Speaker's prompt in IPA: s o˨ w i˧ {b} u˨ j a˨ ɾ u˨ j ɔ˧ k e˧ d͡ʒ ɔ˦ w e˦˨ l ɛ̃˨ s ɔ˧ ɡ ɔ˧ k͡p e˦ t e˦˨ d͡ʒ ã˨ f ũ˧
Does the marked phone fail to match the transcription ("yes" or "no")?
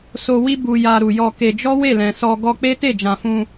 no